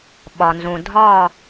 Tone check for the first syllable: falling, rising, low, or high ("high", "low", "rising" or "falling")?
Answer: low